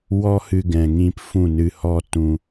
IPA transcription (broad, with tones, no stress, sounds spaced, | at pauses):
w ɔ˦ h ɨ˧ ɡ ɛ̃˨ ŋ ĩ˧ p f ũ˦˨ n ɨ˧ h ɔ˦ t ũ˧